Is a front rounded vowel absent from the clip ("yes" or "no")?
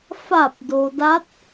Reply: yes